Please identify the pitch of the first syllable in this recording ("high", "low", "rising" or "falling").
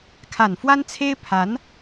low